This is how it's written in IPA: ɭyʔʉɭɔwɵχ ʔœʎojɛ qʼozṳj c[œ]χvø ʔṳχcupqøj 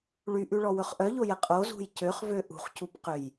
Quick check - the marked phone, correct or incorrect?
incorrect